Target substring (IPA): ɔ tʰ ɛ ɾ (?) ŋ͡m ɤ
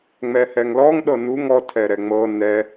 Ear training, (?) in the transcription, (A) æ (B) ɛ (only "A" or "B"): B